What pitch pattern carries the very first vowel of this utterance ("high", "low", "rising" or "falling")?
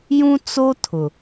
high